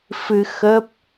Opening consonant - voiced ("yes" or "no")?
no